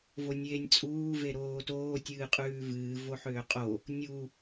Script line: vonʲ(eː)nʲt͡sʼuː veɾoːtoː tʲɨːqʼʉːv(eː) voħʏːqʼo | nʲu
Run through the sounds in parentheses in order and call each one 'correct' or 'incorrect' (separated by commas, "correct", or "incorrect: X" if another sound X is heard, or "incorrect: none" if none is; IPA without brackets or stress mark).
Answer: correct, incorrect: ɨː